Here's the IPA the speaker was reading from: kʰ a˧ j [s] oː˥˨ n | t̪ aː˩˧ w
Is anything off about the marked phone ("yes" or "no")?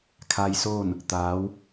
no